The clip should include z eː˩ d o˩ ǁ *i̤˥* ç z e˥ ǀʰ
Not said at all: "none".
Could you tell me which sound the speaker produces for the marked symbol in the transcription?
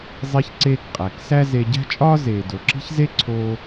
i̤˥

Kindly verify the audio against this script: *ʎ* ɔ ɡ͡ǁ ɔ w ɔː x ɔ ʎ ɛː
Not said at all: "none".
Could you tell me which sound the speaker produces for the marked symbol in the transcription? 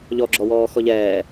ʎ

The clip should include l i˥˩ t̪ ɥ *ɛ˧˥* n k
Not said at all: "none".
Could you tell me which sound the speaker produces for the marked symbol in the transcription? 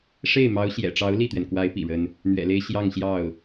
ɛ˩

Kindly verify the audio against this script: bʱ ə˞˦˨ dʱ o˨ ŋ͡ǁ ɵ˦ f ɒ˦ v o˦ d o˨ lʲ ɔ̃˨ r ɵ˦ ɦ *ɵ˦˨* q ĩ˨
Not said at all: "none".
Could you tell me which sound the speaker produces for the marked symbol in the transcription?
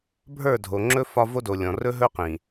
ɵ˦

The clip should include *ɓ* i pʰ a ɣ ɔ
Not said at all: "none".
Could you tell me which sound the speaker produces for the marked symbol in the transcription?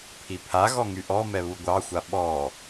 pʰ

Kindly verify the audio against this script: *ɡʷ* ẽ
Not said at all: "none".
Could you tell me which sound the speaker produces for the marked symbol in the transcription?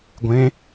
ɡʷ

